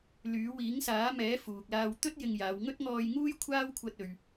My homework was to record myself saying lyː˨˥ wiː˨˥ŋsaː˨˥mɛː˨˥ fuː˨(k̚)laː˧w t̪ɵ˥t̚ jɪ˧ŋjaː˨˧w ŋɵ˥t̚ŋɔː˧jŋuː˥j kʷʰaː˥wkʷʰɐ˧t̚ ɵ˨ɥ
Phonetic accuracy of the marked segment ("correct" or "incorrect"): correct